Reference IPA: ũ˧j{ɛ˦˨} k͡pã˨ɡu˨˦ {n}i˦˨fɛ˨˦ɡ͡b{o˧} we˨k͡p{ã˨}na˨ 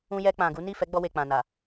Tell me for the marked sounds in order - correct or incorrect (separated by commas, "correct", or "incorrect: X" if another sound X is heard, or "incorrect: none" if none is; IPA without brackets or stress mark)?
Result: incorrect: ɛ˧, correct, incorrect: ɔ˧, correct